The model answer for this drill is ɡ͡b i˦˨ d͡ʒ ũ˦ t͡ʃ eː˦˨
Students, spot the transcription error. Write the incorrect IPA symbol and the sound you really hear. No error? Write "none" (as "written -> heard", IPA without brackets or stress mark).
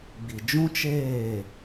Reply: i˦˨ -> i˨